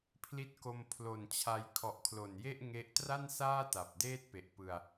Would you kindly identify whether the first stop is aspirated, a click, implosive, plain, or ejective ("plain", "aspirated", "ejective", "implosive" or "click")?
aspirated